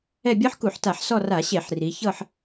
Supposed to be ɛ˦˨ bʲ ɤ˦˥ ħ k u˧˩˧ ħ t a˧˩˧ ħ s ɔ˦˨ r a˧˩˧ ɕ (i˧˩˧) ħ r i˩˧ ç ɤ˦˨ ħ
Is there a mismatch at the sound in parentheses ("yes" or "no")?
yes